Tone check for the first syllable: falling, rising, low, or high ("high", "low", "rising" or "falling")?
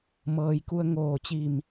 low